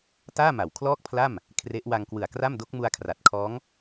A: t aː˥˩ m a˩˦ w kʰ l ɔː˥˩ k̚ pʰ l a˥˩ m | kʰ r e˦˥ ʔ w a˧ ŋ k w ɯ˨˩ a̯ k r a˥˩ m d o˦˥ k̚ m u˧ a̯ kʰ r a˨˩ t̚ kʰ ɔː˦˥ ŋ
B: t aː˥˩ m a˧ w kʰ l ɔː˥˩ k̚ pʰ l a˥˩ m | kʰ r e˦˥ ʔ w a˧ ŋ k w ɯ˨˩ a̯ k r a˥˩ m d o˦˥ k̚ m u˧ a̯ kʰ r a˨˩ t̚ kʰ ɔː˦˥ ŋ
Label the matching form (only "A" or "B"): A